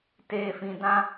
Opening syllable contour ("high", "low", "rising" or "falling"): low